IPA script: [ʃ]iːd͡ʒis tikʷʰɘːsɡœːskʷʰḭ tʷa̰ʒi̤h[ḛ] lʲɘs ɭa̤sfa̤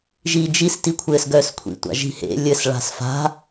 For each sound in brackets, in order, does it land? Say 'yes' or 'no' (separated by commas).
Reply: no, yes